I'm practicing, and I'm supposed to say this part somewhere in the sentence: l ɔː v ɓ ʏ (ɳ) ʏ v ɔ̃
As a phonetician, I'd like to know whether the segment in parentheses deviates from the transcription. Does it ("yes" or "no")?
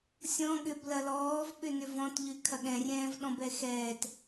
yes